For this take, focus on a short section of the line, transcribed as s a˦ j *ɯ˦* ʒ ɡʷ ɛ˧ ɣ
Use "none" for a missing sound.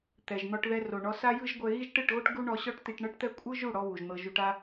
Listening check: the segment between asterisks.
ɯ˦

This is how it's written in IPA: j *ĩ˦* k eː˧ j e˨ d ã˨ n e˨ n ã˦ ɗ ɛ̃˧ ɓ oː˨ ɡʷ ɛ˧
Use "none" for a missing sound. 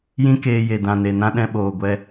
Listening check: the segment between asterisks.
ĩ˦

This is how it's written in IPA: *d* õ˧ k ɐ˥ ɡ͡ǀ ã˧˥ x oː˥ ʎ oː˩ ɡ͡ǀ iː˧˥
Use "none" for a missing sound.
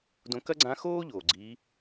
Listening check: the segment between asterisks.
d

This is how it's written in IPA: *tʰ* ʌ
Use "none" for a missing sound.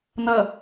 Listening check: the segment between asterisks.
n̪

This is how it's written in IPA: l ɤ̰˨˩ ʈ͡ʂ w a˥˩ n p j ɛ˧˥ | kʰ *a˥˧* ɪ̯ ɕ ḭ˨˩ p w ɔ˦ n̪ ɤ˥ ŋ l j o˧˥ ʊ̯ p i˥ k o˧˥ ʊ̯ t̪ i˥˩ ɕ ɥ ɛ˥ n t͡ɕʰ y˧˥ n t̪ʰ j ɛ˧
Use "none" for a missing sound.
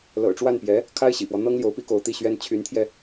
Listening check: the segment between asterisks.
a˥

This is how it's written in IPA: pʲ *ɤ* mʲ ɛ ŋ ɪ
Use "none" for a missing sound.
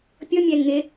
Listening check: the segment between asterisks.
ɤ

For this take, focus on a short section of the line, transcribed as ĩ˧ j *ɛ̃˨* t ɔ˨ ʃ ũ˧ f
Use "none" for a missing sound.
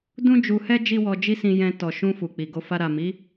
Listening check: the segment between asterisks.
ɛ̃˧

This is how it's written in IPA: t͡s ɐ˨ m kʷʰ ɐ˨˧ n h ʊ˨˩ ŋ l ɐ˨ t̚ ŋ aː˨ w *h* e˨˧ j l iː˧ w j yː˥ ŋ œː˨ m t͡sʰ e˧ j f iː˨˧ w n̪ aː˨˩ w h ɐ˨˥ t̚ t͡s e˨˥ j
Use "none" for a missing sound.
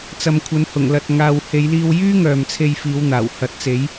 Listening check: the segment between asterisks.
h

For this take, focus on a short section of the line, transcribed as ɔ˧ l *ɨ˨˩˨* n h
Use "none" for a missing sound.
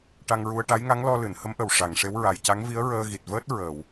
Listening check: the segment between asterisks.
ɨ˨˩˨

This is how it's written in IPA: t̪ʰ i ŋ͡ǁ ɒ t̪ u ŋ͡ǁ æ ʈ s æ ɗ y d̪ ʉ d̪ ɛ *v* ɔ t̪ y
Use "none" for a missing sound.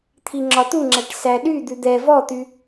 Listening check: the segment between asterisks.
v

